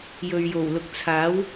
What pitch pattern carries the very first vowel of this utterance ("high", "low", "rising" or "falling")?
low